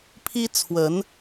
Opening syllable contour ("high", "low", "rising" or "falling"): high